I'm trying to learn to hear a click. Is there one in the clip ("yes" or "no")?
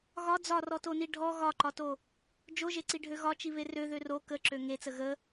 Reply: yes